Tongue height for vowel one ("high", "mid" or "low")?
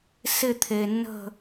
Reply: high